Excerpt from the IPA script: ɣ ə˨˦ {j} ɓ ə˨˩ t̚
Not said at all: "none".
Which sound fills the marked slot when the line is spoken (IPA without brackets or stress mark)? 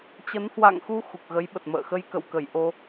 j